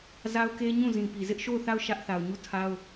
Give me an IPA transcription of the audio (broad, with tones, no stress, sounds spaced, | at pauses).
z a˦ ʊ̯ k e˦ ɲ ũ˦˨ z ĩ˨ p i˨ z ɪ˦ ʔ ʃ o˦˨ ʊ̯ θ a˦˨ ʊ̯ ʃ ä˦ ʔ θ a˨ ʊ̯ ɲ u˦˨ tʰ a˦ ʊ̯